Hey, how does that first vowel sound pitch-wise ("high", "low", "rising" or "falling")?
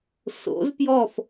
rising